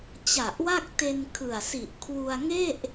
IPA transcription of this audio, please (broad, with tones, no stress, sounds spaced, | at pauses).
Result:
t͡ɕ a˨˩ ʔ w a˥˩ k̚ t e˧ n kʰ ɯ˨˩ a̯ s i˨˩ ʔ kʰ w u˧ a̯ ŋ e˥˩ ʔ